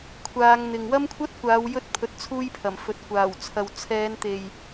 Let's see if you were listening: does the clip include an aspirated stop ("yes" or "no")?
yes